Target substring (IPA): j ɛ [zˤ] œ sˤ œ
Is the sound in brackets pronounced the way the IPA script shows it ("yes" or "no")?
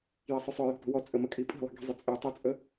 no